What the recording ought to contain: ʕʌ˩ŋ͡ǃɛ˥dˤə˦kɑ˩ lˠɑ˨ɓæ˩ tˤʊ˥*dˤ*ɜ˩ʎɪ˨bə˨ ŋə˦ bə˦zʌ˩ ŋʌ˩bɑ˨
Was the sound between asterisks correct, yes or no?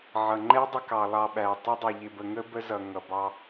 yes